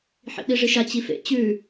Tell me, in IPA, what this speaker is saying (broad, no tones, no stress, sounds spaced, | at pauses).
ħ ḭ ɗ i ʐ i ʃ a t͡ɕ i f ḛ t͡ɕ ʉ